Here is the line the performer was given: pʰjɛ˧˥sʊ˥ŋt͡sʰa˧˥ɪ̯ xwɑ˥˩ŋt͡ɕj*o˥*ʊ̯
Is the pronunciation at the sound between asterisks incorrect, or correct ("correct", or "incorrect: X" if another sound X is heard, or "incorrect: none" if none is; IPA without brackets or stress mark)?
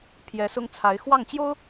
correct